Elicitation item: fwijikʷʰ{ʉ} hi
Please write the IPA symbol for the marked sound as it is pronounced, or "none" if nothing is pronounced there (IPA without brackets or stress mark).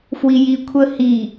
ə